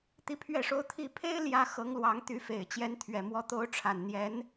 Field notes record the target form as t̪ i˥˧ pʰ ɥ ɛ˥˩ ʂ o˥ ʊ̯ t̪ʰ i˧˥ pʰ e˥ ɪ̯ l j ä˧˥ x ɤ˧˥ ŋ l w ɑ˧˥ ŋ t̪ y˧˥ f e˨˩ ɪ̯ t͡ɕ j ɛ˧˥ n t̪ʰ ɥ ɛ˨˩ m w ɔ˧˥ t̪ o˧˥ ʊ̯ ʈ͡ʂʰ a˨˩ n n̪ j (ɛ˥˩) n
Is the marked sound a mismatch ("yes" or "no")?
yes